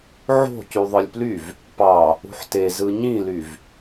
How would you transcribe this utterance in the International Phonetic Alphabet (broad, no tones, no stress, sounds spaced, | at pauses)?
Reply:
ʕ o̤ c y ðˤ ɯ lʲ p l y v | p ɑ | ṳ ħ t e z ɯ ɲ ĩ l y v